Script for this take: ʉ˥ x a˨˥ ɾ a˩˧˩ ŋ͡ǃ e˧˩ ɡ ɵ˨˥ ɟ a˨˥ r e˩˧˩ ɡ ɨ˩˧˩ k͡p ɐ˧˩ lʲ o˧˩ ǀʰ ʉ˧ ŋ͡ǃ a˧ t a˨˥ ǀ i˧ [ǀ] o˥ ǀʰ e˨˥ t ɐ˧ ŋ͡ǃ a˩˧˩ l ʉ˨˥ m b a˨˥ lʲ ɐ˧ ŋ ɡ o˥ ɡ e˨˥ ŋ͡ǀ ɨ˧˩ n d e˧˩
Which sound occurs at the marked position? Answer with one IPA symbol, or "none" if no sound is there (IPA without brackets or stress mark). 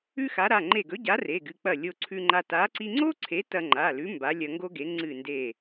ŋ͡ǀ